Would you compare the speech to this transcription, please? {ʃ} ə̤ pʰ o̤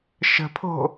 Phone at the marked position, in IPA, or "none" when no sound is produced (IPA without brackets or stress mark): ʃ